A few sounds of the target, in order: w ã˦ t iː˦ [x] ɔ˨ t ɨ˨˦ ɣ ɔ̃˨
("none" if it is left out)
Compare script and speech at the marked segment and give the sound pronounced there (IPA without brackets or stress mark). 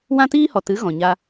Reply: h